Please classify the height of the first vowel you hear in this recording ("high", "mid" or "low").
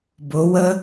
high